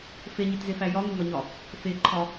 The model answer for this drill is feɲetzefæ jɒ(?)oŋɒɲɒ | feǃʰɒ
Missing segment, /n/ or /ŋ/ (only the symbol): ŋ